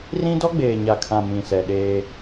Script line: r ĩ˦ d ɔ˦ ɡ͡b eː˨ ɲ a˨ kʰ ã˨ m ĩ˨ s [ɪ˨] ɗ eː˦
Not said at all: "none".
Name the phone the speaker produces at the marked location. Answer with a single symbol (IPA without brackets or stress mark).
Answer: ɛ˨